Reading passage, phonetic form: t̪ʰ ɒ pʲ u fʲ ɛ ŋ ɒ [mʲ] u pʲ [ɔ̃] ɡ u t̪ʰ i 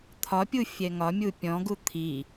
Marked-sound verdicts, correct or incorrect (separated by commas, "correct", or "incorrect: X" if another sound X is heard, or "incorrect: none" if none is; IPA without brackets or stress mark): correct, correct